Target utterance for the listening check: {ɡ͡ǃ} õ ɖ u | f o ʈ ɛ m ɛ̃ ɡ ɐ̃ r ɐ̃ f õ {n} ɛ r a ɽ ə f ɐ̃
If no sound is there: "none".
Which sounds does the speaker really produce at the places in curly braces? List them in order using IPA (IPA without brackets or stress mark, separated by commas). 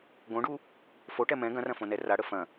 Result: ɡ, n